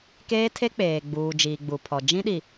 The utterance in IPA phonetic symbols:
k eː˦ tʰ e˦ k͡p eː˨ ɡ͡b uː˨ d͡ʒ iː˨ ɡ͡b u˨ pʰ ɔ˨ d͡ʒ ĩ˦ ɗ i˨

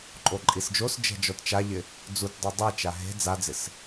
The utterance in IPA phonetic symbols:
ǃʼ o ǃʼ i s d͡ʒ o s d͡ʒ ɛ̤ d͡ʒ ɔ t t͡ʃ a ʎ ɪ | d͡z u t dˤ o dˤ ɛ t͡ʃ a ɦ e̤ d͡z a d͡z ɪ s

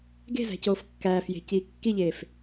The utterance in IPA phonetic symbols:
ɡ e̤ z æ̤ c oː f kː æː f j e̤ c iː kː i ʎ eː f

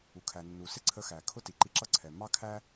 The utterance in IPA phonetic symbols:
u˩ kʰ æ˩ nː u˩ s ɪ˥ ǀʰ ə˧ x æ˩ kʰ ʊ˥ t i˩ ǃ i˧ ǁ ʌ˥ ǀʰ ɛ˩ mː ɑ˥ kʰ æ˥

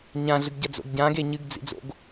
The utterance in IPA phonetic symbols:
ɲ ã ɮ ɨ ɡ ɟ ɐ d͡z o̰ ɡ ɟ ã ɡ e ɲ ɨ ɡ d͡z ḭ d͡z o̰ ɡ

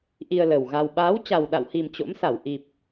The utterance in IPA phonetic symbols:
ʔ i˧ ə̯ l ə˨˩ w ɣ a˧ w ɓ aː˨˦ w t͡ɕ a˨˩ w ɗ a̰˧˨ w h i˨˩ m t͡ɕ o̰˧˥ m s a˧˩ w ʔ i˨˩ p̚

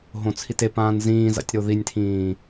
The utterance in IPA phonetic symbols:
ɦ õ t͡sʰ i t e p ãː n z ĩː z a̰ tʲ ɾ o ð i nʲ tʰ ĩː

